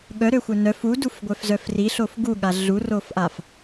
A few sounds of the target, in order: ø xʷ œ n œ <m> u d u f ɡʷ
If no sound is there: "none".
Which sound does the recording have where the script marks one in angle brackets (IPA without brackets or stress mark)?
f